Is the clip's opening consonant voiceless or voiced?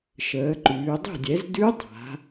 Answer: voiceless